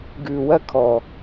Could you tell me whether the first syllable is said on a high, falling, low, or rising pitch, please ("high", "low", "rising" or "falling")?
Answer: low